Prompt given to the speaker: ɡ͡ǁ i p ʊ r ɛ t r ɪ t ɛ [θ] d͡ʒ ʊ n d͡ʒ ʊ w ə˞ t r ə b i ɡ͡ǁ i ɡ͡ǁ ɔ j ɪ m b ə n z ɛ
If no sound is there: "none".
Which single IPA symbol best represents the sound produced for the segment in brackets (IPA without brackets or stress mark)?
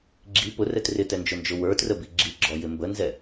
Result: n